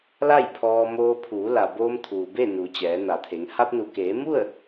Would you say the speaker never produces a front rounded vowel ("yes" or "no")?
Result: yes